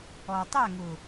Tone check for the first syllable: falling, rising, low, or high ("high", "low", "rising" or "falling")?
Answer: low